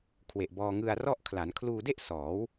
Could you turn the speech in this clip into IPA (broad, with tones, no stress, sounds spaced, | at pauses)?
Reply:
kʰ w e˨˩ ʔ b ɔː˧ ŋ ɯ˧ a̯ r ɔ˥˩ ʔ kʰ l a˩˦ n kʰ l uː˧ d e˥˩ ʔ s ɔː˩˦ w